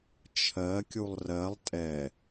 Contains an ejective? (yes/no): yes